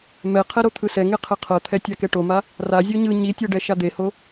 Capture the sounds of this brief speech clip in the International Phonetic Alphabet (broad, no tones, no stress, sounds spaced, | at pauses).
m ɛ qʰ ɛ ɾ o t̪ʰ ɯ s ɛ ŋ e qʰ ɛ qʰ ɤ t̪ʰ ɛ tʲ a k ɛ ʈ o m a | r a zʲ o ɲ ɯ ɲ i tʲ ɤ ɖ ɛ ʃ a d̪ e h o